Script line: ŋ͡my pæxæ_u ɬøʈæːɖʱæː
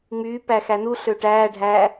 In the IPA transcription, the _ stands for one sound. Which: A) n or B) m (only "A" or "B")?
A